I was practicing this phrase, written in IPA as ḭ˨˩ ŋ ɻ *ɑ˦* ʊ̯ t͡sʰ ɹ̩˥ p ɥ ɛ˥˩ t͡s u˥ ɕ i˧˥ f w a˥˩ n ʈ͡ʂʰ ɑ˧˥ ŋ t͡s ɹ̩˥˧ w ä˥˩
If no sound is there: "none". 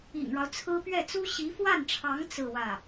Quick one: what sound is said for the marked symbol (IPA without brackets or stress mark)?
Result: ɑ˦